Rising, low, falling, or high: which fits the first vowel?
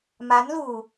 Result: rising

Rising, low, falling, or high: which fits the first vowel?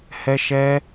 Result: high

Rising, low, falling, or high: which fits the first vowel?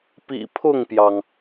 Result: low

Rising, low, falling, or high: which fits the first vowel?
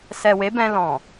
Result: low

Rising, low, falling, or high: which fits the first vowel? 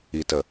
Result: low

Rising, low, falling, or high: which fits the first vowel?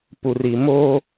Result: low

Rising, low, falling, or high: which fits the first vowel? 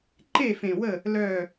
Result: falling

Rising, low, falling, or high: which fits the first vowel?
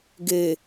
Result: low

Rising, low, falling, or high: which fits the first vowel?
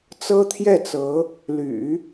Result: high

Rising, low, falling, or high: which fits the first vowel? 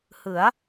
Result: rising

